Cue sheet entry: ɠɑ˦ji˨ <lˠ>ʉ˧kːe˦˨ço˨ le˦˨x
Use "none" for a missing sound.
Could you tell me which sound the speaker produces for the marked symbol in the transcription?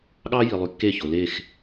lˠ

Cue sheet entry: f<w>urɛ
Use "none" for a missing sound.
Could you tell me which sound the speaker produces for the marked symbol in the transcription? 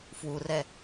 w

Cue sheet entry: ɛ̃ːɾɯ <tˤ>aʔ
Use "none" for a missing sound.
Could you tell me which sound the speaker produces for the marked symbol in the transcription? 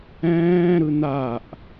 n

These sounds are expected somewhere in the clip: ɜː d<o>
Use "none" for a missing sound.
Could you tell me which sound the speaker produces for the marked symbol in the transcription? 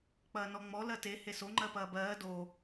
o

